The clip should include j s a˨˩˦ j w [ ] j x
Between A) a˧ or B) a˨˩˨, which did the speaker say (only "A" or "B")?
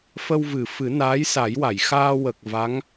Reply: B